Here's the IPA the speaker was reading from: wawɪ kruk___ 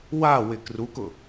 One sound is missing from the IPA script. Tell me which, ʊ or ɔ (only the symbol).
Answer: ʊ